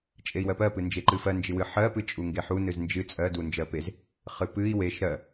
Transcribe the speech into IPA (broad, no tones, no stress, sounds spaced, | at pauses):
t͡ʃʼ e i̯ w ɜ p ɜ p ɨ n d͡ʒ e ǃ ɨ f ɜ n d͡ʒ ɨ w ɨ ħ ɜ p ɨ t͡ʃʼ u ŋ ɡ e ħ u n ɨ z n d͡ʒ ɨ t͡sʼ ɜ d u n d͡ʒ ɜ p e z | χ ɨ p ɨ i̯ w e ʃ ɾ ɜ